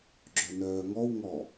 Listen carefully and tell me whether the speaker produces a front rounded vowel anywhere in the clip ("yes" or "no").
yes